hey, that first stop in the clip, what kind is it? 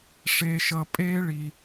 ejective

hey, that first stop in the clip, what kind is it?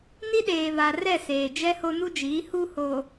implosive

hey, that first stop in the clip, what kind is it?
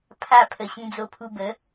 aspirated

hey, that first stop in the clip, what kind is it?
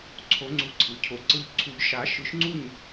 click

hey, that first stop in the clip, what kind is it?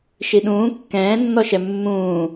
implosive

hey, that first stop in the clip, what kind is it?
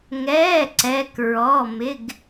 click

